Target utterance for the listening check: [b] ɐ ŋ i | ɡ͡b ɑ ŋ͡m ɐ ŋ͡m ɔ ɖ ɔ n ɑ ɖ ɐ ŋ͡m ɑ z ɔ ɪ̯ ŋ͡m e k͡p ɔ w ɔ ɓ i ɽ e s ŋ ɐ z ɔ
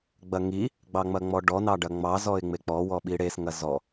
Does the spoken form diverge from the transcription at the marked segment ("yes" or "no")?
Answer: yes